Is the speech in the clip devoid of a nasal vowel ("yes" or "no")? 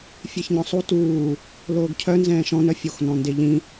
no